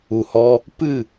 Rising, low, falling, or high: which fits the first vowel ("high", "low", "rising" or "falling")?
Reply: low